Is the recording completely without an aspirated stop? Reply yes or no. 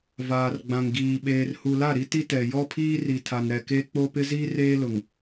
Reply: no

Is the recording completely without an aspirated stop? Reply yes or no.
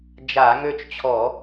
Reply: no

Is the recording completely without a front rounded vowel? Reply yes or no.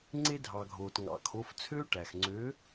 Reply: no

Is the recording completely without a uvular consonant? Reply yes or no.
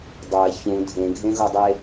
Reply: yes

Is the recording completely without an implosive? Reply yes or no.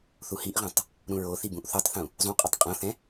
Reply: yes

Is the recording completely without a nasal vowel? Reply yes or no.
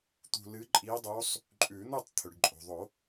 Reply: yes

